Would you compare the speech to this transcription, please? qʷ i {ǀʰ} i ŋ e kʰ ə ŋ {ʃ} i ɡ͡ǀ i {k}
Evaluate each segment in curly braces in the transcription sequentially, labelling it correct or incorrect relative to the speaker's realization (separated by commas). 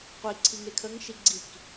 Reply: correct, correct, correct